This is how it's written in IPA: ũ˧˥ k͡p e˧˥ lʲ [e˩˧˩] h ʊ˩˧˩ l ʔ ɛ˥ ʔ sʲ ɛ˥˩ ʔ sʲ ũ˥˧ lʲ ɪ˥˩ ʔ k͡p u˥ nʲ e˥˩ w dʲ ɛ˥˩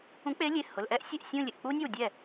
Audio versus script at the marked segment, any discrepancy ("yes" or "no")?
no